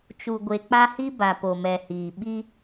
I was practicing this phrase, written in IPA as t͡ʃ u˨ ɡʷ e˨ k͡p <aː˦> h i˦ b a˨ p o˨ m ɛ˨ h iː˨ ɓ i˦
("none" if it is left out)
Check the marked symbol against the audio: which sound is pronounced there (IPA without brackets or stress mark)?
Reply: a˦